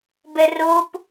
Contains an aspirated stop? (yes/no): no